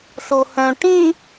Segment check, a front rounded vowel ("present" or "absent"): present